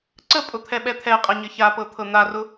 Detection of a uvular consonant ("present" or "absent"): present